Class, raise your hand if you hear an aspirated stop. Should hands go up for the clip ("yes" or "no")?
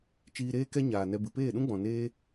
no